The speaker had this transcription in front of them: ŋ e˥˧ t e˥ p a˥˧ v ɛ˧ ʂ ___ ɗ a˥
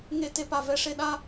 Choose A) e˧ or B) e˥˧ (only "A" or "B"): B